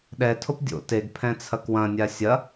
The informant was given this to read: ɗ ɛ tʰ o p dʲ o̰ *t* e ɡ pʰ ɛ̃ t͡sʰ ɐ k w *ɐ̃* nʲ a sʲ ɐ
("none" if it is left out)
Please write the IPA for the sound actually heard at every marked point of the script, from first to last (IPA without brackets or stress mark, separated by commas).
t, ɐ̃